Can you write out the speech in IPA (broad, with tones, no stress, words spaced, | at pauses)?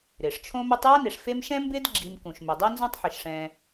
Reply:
ɾɪː˩ʂ t͡ʃʰõ˥ me˦tˤja˥ne˨ʂ fe˦mʃɛ̃˥ mbɪː˥dɡ͡ǁi˨mkũ˩ʃ mɪ˩dˤe˦ nzõ˦tˤħɪ˩ʃʂɛ̃ː˨